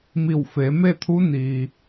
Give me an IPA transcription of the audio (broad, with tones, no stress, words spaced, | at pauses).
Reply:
mi˧˩wfe˩˧me˥˨t̪ʰu˧˥ niː˩